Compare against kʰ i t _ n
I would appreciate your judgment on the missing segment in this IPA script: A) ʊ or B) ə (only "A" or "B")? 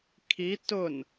A